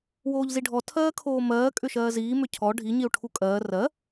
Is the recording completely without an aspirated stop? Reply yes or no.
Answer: no